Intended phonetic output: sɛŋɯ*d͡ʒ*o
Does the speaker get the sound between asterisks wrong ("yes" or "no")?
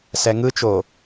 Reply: yes